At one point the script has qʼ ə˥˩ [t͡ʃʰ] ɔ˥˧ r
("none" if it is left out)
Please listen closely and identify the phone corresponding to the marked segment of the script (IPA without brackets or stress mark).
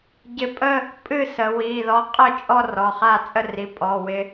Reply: t͡ʃʼ